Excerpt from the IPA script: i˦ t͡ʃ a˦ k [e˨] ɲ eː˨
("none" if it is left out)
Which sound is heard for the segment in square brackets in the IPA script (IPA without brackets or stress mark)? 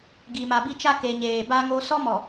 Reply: e˨